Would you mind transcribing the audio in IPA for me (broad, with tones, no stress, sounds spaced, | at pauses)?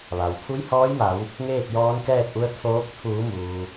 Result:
ʋ a˩ w pʰ u˧˥ j h ɔː˧˥ j m a˩˧ w | ŋ eː˥˨ k̚ j ɔː˧˥ n k ɛː˥˨ t̚ ʔ u˧˥ ə̯ t̪ʰ oː˧˥ k̚ t̪ʰ uː˩˧ m uː˩